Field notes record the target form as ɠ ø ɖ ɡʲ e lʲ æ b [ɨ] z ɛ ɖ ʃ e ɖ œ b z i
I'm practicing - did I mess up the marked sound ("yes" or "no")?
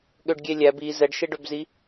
yes